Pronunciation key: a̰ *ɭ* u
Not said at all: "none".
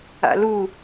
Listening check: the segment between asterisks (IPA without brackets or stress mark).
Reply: l